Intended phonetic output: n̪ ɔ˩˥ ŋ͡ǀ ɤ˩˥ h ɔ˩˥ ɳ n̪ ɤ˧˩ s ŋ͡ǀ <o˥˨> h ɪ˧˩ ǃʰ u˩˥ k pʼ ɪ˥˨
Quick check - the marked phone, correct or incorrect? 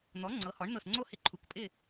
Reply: correct